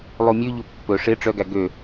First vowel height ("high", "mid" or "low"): high